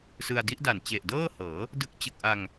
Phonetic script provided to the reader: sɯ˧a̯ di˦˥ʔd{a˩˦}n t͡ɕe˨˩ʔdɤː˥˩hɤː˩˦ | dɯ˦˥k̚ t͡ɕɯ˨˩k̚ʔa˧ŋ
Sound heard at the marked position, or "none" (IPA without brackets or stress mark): a˨˩